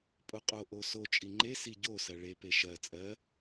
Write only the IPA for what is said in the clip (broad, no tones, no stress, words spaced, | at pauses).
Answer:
pʼoqʼo ʔoso t͡ʃʼiŋ͡ǃe siɟo sɜɭe peʃɜ t͡sʼɜ